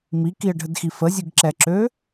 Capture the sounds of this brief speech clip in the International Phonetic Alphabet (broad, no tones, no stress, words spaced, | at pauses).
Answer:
mikiə̯ɖʱədxi fəzʲɯɡǁɛǁø